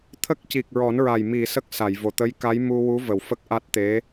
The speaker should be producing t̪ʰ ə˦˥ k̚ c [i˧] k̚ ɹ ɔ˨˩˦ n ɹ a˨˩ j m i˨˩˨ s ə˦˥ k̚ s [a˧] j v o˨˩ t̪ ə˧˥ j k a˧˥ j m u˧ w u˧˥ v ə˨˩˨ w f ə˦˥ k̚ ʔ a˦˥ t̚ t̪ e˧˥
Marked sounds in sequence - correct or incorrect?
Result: incorrect, incorrect

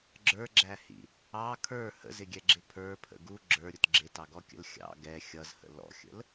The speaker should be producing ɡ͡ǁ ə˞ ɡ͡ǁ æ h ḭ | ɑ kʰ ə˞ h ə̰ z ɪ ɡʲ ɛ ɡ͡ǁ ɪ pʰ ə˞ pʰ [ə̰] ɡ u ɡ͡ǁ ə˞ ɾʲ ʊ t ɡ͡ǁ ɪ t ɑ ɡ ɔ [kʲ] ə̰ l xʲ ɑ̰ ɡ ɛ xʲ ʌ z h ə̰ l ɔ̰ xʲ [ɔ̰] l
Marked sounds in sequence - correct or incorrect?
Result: correct, correct, incorrect

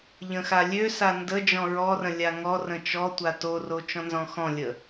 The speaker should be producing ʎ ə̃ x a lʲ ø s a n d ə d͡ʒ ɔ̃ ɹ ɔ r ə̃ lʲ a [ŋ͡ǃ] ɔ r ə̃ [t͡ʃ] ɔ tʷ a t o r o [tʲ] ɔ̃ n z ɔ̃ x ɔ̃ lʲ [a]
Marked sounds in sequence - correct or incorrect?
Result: incorrect, correct, incorrect, incorrect

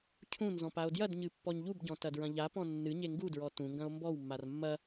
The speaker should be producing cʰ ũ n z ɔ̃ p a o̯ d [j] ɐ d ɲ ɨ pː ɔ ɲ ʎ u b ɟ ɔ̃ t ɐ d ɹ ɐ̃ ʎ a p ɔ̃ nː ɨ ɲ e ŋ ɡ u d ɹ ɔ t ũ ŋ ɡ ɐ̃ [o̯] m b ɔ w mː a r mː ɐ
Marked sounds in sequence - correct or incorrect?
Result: correct, correct

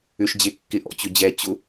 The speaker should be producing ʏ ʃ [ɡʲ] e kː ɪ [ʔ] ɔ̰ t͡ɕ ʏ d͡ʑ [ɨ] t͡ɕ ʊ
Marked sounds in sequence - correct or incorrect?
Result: incorrect, correct, incorrect

